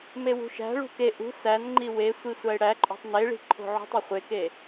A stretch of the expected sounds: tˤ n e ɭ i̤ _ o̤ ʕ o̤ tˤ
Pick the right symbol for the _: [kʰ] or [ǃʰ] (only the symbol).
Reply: ǃʰ